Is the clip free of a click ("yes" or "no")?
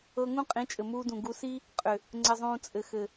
no